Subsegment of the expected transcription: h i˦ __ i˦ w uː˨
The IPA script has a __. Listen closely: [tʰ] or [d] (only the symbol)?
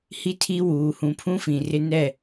tʰ